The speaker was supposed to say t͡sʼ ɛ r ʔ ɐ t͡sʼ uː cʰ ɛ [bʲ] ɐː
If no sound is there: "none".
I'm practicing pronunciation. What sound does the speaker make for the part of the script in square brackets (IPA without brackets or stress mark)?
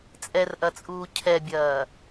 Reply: bʲ